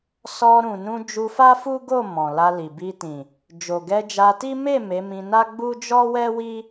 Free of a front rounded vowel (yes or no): yes